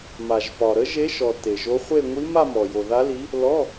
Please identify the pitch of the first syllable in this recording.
low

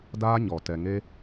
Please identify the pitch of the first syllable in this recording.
high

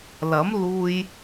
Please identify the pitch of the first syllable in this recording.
rising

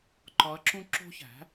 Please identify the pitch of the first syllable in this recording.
rising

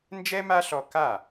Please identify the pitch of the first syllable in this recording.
high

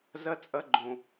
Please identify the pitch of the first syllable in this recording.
high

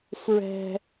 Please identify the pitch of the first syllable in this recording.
high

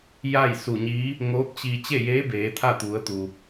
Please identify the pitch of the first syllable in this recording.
falling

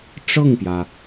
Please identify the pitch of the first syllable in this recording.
falling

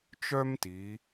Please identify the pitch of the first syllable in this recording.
high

